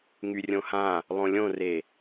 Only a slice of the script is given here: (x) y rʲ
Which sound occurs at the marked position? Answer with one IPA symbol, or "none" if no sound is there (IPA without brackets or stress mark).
ŋ